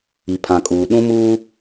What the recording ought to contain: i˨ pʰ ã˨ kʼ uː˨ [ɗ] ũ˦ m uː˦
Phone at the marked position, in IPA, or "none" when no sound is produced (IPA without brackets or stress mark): ɗ